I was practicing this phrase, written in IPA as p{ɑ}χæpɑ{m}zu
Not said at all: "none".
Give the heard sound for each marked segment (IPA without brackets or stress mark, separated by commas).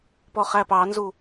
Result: ɔ, n